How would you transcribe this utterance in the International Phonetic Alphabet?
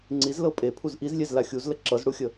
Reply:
ŋ͡ǀ i z l ɤ pʼ e pʰ u z ʔ i z lʲ e z l a xʲ u z l ə ǁ ɤ z ɽ u xʲ ə

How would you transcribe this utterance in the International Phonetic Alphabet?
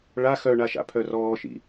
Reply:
ɭ a x œ ɳ a ʃ a̰ pʰ œ r ɔː ʃ ḭ

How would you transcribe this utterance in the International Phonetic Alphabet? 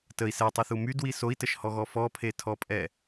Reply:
t ə i̯ s ɛ tˤ i θ u m y d w i s o i̯ t ə ʃ h ɔ ɣ ɔ f ɔ pʰ e tʰ ɔ pʼ ɛ

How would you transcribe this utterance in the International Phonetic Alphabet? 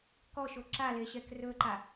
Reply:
k ɔ ʃ o ǁ a l e ɕ ɛ k r ɵ ǃ a

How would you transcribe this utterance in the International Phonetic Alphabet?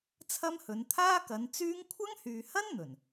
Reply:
t͡sʰ ɐ˥ m h ɵ˨˥ n t̪ʰ aː˥ k ɐ˨˧ n t͡s yː˥ ŋ kʷʰ ɐ˥ ŋ h yː˨ h ɐ˥ n n̪ ɵ˨˩ n

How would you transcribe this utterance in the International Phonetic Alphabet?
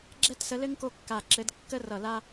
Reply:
ɡ͡ǁ ɛ˥ t s ə˧˥ l ɘ˥ ŋ k o˥ kː a˦˨ ǁ ɘ˧˥ d kː ə˥ r ʌ˦˨ l a˥

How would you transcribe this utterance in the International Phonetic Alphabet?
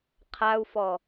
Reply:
qʰ a u̯ f ɔ

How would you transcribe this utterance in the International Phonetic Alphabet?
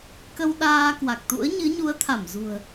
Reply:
k ə˧ w ɗ aː˧ k w a˨˩ k̚ t̪ ṵ˧˥ ə̯ ɲ ɨ˨˦ ɲ u˨˦ ə̯ t̪ʰ a˧˩ m z ṳ˨˩ ə̯

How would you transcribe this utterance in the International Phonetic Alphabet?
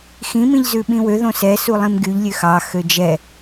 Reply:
x ĩ m ĩ ʎ z ʉ ɓ ĩ w ø ð õ s ɛ s u lˠ ĩ m ɡ y ʎ lʲ ø x ɑ x ø d͡ʒ ɛ

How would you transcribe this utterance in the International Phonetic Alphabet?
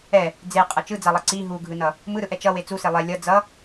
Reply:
ɛ | d͡z e qʼ ʌ t͡ʃ ɯ d͡z a lˠ ʌ ǀ i ɦ u ɡʱ ɯ n ʌ | m ɯ ɾ ɯ ʔ ɛ t͡ʃ ʌ w e t͡s u s e lˠ e lʲ ʌ d͡z ʌ

